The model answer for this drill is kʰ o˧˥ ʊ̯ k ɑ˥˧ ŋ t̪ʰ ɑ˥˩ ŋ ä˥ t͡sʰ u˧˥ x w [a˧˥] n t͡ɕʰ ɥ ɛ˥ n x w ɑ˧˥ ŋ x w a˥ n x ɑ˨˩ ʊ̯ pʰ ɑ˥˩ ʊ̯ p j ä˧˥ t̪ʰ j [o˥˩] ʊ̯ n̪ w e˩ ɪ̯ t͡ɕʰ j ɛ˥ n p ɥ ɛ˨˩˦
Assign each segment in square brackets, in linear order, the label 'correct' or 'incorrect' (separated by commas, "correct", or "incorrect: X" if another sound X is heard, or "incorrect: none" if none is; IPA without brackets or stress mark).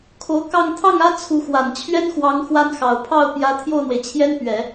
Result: incorrect: a˨˩, correct